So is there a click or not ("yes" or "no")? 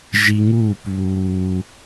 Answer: no